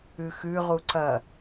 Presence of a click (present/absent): present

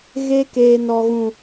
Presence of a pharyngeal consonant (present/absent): absent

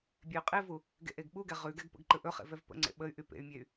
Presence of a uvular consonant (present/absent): present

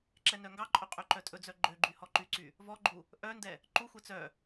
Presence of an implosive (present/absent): absent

